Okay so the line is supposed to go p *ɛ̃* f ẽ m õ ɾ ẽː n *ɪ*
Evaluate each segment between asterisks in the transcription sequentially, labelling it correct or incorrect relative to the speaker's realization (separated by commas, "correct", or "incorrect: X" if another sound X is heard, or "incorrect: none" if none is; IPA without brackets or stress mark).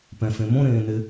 correct, correct